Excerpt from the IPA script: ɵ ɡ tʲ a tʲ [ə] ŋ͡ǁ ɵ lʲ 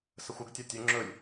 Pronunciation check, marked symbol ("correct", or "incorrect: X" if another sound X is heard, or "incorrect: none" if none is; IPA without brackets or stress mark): incorrect: ɵ